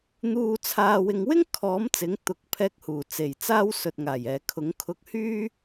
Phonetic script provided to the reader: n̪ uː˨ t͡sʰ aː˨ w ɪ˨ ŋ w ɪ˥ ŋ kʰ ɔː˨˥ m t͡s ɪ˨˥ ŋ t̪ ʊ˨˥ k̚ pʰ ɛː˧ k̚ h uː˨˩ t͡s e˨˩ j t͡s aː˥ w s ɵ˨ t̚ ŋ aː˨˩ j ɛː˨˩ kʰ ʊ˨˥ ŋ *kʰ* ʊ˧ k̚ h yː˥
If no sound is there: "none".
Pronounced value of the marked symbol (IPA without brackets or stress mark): kʰ